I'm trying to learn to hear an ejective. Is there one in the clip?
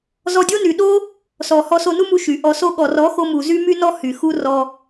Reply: no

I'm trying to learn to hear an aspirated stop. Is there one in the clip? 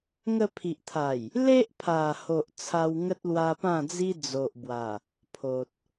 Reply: yes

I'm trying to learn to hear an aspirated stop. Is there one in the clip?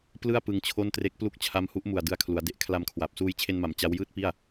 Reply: yes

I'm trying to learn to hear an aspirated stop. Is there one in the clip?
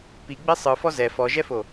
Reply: no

